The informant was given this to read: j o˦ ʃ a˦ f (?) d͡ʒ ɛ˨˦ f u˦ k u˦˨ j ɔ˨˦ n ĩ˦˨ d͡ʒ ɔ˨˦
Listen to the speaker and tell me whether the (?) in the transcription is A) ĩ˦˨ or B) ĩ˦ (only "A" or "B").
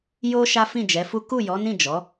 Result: A